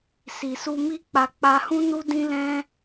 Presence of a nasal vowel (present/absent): present